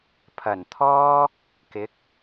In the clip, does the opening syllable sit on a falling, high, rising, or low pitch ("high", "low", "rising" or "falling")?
low